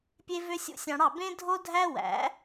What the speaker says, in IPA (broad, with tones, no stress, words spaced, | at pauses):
pʲe˦vø˦ sʲṵ˦sʲɑ̃˧ɽɑ˦˨ bẽ˦dʱo˦dʱæ˦ wæ̰˨˦